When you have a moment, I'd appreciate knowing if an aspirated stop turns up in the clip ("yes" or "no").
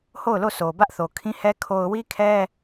yes